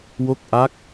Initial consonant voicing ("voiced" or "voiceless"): voiced